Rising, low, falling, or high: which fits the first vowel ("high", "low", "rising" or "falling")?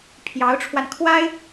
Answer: rising